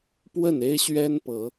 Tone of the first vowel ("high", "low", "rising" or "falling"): falling